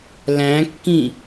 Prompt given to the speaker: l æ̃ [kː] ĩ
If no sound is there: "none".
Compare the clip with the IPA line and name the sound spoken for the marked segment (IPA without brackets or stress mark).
kː